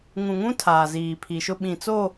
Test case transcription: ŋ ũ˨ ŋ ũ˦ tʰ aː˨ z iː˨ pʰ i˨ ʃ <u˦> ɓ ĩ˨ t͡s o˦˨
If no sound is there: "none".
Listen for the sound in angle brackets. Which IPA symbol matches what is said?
ʊ˦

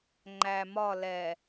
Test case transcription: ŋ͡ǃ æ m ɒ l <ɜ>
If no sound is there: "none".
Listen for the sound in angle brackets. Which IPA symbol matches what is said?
ɛ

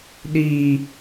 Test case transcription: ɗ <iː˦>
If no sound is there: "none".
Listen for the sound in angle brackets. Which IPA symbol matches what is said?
iː˨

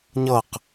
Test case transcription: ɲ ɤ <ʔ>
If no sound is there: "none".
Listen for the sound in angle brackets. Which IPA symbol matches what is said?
q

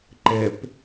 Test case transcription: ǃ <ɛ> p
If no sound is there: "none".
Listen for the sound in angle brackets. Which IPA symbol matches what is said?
ɛ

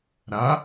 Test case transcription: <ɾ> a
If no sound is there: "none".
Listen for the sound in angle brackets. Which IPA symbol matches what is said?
ɾ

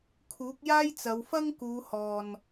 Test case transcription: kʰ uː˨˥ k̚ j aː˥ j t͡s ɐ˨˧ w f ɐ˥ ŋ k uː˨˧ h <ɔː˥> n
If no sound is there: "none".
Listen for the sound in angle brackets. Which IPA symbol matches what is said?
ɔː˨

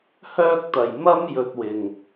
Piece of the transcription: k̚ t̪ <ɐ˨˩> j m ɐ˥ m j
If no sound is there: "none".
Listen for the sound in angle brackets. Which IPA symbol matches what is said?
ɐ˨˩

